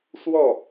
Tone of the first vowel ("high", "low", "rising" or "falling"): falling